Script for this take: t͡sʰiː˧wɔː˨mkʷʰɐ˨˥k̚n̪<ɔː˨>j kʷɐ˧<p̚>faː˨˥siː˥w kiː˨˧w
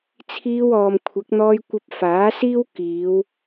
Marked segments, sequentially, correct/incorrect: incorrect: ɔː˧, correct

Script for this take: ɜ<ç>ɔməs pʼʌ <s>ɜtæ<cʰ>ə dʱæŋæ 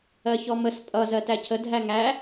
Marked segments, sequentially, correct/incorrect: correct, incorrect: z, correct

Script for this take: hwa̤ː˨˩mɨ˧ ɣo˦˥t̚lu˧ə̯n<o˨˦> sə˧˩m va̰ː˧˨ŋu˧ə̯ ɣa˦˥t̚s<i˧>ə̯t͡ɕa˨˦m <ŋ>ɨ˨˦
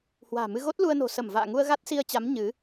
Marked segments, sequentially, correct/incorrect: incorrect: o̤˨˩, correct, incorrect: ɲ

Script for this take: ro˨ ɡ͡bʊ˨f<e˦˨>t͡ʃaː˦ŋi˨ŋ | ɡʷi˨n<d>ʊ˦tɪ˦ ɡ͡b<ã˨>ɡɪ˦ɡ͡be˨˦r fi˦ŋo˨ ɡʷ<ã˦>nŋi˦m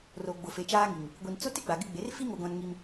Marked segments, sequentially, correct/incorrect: incorrect: e˨, incorrect: t͡s, incorrect: a˨, correct

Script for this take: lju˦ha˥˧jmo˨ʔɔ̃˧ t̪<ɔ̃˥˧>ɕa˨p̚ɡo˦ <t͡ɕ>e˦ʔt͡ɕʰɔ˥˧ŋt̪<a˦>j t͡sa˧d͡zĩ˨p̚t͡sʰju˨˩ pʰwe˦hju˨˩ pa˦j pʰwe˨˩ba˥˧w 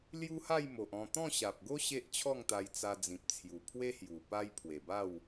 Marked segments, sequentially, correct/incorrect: correct, incorrect: ɕ, incorrect: a˧

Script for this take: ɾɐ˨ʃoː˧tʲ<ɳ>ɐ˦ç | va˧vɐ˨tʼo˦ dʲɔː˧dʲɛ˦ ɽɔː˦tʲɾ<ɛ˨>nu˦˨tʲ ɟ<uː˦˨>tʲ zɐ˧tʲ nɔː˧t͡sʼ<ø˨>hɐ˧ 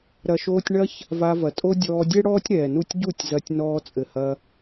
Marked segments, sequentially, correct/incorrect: correct, incorrect: ɛː˨, incorrect: u˦˨, incorrect: ɘ˨

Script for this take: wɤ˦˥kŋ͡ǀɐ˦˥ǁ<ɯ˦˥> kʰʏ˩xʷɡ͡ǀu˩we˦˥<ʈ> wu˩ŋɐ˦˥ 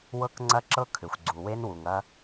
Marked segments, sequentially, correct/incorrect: incorrect: ɤ˦˥, incorrect: n

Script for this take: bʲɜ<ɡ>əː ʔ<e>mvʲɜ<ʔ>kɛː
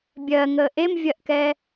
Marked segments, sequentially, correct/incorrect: incorrect: ŋ, correct, correct

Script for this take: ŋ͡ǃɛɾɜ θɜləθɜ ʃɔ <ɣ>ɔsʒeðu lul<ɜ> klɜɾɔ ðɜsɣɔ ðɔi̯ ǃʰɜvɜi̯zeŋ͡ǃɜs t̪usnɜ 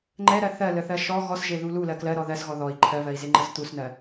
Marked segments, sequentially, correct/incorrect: correct, correct

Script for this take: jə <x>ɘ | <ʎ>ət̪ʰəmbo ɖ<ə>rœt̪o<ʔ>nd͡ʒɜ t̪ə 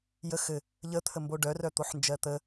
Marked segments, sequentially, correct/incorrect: correct, correct, incorrect: œ, incorrect: ħ

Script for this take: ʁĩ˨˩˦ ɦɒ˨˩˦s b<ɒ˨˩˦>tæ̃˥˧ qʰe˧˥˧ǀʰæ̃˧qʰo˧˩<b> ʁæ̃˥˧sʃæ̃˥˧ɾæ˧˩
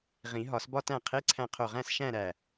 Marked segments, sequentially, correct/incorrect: incorrect: ɒ˥, incorrect: none

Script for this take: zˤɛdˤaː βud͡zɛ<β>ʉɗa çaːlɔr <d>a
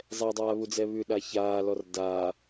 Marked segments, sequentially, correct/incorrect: correct, correct

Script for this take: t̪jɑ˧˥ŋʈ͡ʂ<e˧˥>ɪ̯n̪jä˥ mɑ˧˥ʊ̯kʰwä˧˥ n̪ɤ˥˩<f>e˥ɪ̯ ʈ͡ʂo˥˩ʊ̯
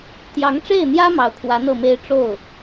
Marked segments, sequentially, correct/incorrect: incorrect: e˥˩, incorrect: m

